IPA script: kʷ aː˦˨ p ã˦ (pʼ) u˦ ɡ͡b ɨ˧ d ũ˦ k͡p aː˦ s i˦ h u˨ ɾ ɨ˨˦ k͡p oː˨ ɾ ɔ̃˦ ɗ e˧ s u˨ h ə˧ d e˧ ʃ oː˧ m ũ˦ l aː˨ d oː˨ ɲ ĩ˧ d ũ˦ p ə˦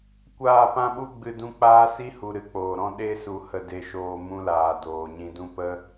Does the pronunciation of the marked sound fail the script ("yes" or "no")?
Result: yes